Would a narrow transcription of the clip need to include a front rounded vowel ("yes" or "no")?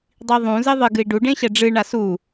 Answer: no